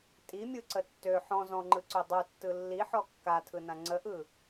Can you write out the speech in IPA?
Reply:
tʼimʲɯǀə tːø ħɔ̃ zɔ̃ŋ͡ǃɯǀø dˤutːɯ lːiħɔ kːatʰɯnã ŋ͡ǀəʔɯ

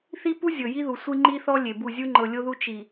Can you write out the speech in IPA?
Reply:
θi˦pu˦ zʲɤ˨ji˦ðu˨ sʷi˦ŋ͡ǃi˦θɔ˦ lʲe˨bu˦˨ zʲu˦ŋ͡ǃɤ˨lʲo˦ðu˦ t͡ʃi˨

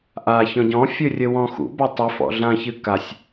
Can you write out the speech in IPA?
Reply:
ʔa çɔ̃ɟɔ̃fʲɨ rʲɘwɔ̃xṵba tˤɨ fɔ̰ɮãçɨ kasʲ

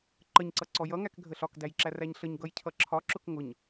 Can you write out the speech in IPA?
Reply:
ǃəɲǀʌ ǀɔjʌŋæk ɡʱəɬɒkdæjǁæ ræɲɬəɲ ɡʌjcʰʌǁʰɒ ǁʊkŋʊɲ

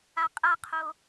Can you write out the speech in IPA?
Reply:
aqʼaqʰo

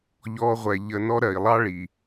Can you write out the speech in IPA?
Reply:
ʎɔː˧ʁʷɛ˨ʎə˧nɔ˦ ɾɜ˨i̯lˠɑ˦ɭi˨

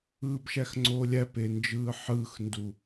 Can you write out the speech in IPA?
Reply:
ɯːbʃæxŋ͡ǀoːlʲæ pend͡ʒɯːħɯːxndu

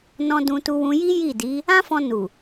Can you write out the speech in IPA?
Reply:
nɔ̃˧dũ˧ tu˧wũ˧ji˦ ji˦˨di˨˦ | ã˦fɔ̃˧ nu˨

